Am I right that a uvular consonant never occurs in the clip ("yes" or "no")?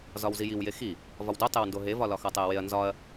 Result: yes